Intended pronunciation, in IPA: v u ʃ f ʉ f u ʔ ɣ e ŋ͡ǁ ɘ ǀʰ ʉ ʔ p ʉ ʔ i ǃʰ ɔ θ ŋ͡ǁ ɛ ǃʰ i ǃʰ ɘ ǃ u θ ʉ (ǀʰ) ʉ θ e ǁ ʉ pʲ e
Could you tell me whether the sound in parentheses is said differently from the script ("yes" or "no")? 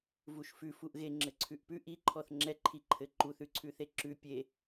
no